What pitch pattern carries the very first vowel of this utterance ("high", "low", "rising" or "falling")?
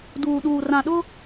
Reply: low